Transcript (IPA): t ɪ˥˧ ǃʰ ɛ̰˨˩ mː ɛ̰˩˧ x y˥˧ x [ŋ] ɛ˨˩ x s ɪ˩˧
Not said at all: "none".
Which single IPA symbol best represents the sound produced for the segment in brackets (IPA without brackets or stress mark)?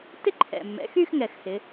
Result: ŋ